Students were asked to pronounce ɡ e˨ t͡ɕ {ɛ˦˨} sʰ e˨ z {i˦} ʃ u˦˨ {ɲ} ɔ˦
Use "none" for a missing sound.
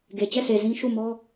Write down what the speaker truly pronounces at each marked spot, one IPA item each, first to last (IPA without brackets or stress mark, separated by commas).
ɛ˦˨, ĩ˦, m